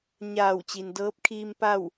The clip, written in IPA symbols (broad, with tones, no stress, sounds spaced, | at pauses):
ɲ aː˧˩ w t͡ɕ i˩ n d ɤː˧˥ p̚ kʰ iː˧ m p a˥˨ w